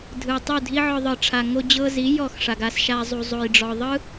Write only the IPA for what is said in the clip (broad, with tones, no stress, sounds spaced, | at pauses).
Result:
dʱ ɯ˨ tˤ u˦˨ dʱ i˦ ʕ ɔ˧ ðˤ ɯ˨ ʈ͡ʂʰ a˨ ŋ o˧ d͡ʑ ɤ˧ z i˨˦ j ɔ˦˨ x ʂ a˨ ɡ a˧ s ʃ a˧ zˤ u˨ zˤ o˨ j ɖ͡ʐ ɔ˨ ðˤ ɯ˦